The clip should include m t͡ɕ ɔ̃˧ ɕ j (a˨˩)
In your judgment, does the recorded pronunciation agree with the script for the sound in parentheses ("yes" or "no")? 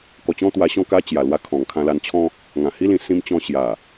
yes